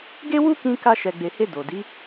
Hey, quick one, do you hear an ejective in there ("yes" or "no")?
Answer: no